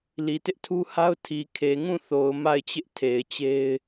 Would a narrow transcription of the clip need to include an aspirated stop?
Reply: yes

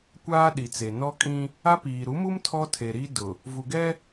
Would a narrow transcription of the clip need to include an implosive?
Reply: yes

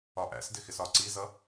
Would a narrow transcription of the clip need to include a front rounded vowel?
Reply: no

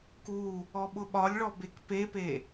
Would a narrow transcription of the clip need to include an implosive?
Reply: yes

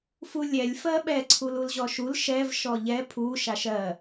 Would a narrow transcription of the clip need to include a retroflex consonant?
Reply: no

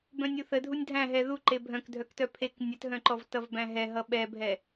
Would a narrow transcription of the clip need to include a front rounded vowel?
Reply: yes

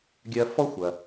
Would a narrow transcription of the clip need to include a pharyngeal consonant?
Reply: no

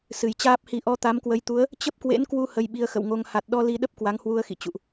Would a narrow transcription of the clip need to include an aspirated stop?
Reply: no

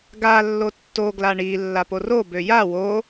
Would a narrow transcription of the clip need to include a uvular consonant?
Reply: no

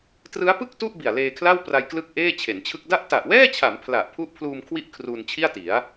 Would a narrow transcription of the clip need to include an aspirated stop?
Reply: yes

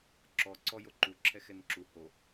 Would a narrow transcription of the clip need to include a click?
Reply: yes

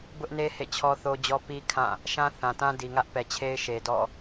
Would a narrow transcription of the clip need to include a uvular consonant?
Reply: no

